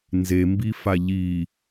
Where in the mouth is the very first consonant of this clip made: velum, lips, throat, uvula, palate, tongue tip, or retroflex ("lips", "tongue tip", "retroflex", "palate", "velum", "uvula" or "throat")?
tongue tip